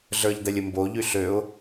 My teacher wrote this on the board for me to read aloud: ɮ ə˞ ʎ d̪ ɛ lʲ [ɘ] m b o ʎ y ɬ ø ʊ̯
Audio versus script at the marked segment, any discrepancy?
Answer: no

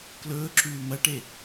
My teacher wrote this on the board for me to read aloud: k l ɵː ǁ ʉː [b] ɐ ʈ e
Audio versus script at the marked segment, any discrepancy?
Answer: yes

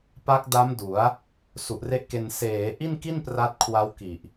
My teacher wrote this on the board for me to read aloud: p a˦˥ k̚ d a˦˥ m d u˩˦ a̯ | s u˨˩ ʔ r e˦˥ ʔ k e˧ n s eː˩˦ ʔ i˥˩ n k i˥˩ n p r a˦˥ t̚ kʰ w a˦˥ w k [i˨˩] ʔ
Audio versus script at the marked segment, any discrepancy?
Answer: no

